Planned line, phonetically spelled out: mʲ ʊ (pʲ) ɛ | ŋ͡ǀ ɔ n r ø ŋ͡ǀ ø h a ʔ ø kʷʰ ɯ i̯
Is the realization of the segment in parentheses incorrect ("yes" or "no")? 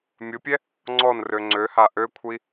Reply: no